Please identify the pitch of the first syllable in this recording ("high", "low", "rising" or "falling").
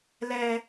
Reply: high